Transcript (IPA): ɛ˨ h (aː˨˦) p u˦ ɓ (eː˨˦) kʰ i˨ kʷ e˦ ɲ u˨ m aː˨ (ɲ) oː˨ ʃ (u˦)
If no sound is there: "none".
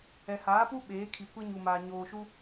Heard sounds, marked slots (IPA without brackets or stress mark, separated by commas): aː˨˦, eː˨˦, ɲ, u˦